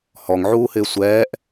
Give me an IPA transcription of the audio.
h ɔ ŋ ʕ uː h ɪː sʷ ɛː ʔ

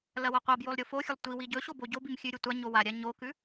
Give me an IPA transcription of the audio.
l ɐ w ɐ qʷ a b j o lˠ ɾʲ o f o xʲ ɵ lˠ tʷ i w i ɟ ɵ ɕ o b o ɟ o b i m xʲ ʉ ɾʲ ɵ tʷ a ɲ o w a ɾʲ a ɲ o k ʉ

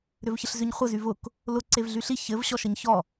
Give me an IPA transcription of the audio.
ɾ ʏ v ç ə ɬ z ʏ ɲ χʷ ə z y v ʊ k | l ʊ ǀ e v ɮ y ɬ i ç ɘ v ɕ ɔ ʃ ə ɲ ç ɔ

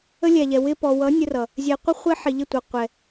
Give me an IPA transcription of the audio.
ə˦ lʲ æ˨ ʎ ɛ˨ w ɪ˧ p ɔ˨ w ʌ˨˦ nʲ ə˧ r ʌ˨ | zʲ ɛ˨ qʷ ɪ˦ χʷ ɪ˦ ħ i˨ ʎ ɪ˦˨ tʷ ʌ˨ qʷ ɛ˨

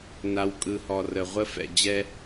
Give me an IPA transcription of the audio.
n a˨ w kʼ ɯ˨ h ɔ˨ r ə˨ ʁʷ ə˦ f ɛ̰˨ d͡ʑ ɛ˦

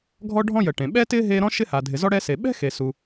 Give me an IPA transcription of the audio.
ɡʱ ɔ˥ ɖʱ ɔ̃˥ j ə˨ ʈ ẽ˨ ɓ ɛ˥ t ɪː˥ ɦ e˥ ɾ ɔ̃˥ ʃ ɪ˥ h a˨ dʱ ɪ˨ z ɔ˥ ɽ ɛ˥ s e˨ ɓ ɛ̤˥ x e˨ s u˨

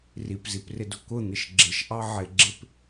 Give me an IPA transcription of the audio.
r i p z i p r ɪ d ʊ k ʊ n̪ ɪ ʃ ɡ͡ǁ ɪ ʃ ʔ ɑ ʕ ɪ ɡ͡ǁ ɪ p

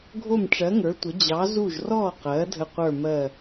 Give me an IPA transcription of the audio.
ɡʱ o˦˨ m ʈ͡ʂ ɜ˨˦ ŋ ə˞˨˦ tʷ ə˨˦ d͡ʑ ɑ˨˦ z u˦˨ ʒ r ɔ˦˨ q ɜ˨˦ dʱ ə˦˨ qʷ ə˞˦˨ m ɜ˦˨

